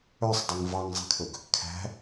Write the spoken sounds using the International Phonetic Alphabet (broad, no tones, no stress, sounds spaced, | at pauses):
œ sˤ dˤ e ŋ v ɑ ŋ zˤ ɛ̤ kʰ ɵ ɡ | kʰ æ̤